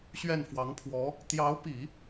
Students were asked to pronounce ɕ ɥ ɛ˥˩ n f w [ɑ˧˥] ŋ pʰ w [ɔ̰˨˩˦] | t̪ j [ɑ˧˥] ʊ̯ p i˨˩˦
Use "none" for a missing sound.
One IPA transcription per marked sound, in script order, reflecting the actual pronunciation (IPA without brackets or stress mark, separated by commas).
ɑ˧˥, ɔ˧˥, ɑ˧˥